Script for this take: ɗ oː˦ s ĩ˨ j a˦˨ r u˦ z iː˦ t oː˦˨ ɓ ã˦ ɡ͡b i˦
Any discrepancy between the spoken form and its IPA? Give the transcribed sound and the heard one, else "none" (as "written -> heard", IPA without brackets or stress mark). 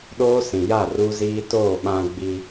none